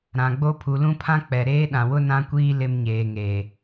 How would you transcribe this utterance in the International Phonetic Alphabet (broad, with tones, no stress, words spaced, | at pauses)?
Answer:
ɾã˨ɡ͡bo˦ pʰu˨lũ˦pʰã˦k͡pɛ˨ ɾeː˦ɗã˨wʊ˦ nã˦kʷiː˦ lɪ˦mɲeː˨ŋeː˨